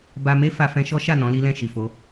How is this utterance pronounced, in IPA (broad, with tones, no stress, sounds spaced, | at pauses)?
b a˧ m e˦ f a˧ f ɛ̃˧ ʃ ɔ˦ ʃ a˦˨ n ɔ̃˨˦ l i˦ l ɛ̃˦˨ ʃ i˨ f o˨˦